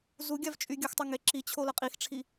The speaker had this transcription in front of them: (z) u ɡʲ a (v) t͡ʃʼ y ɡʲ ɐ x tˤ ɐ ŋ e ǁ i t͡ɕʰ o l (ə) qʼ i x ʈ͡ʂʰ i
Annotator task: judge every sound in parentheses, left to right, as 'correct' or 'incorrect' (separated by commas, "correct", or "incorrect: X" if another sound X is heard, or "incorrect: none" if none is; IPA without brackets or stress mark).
correct, correct, incorrect: ɐ